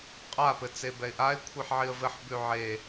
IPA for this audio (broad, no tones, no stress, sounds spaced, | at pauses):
qʼ a p ɘ t͡s e b ɛ ɪ̯ ʔ a ɪ̯ kʷʰ i ħ ʕ i ə̯ v ɘ ħ b ʉ ʕ e